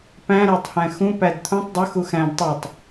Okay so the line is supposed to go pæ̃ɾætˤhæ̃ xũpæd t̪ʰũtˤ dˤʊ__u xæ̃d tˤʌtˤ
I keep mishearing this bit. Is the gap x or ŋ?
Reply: x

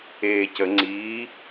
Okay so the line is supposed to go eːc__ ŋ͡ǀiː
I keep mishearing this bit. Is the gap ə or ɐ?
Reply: ə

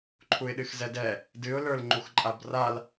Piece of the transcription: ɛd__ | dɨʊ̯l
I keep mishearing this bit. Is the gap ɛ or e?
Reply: ɛ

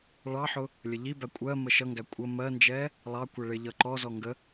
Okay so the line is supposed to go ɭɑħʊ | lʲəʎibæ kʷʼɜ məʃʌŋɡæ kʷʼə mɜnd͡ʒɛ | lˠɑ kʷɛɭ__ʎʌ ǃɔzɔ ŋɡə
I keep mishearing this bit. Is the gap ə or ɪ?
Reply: ɪ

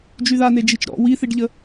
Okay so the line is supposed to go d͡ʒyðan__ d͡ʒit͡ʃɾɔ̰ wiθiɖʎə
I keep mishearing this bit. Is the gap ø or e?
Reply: e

